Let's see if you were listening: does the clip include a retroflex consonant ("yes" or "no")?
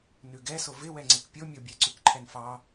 no